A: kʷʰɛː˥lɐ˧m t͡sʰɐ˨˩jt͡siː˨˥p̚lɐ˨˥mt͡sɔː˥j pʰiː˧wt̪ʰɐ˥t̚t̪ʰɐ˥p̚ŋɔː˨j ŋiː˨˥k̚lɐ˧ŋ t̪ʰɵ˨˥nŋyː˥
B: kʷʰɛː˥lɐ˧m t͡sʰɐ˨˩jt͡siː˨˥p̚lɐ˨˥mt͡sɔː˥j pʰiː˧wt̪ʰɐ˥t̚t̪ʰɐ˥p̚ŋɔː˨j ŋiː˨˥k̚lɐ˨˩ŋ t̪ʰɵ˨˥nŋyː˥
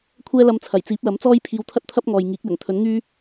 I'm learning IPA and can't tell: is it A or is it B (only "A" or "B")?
B